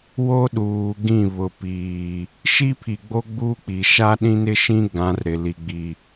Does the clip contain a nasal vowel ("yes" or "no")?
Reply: yes